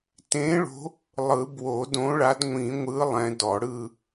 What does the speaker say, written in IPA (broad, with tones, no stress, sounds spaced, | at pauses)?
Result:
t ẽ˨˦ ɭ o̤˨˦ | lˠ ɯ˨˩˦ b w o˨˩˦ d õ˨˦ ɭ a˨˦ d ŋʷ ĩ˨˩˦ ŋʷ ɯ˨˦ lˠ ɛ̃˨˦ d ɔ˨˩˦ ɽ ɯ˦˨